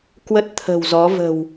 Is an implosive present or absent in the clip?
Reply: absent